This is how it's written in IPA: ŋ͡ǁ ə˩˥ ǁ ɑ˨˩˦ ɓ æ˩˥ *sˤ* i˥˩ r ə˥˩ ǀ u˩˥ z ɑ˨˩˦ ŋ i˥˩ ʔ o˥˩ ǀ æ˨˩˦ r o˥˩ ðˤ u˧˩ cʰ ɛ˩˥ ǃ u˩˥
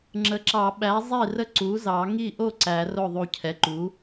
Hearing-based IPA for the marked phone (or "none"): zˤ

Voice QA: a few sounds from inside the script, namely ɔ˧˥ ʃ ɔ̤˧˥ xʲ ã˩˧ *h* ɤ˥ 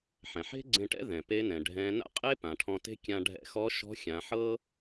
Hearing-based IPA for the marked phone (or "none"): ħ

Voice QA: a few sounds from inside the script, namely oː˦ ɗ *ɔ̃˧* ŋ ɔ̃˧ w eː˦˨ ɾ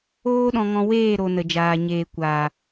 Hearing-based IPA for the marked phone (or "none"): ɔ̃˧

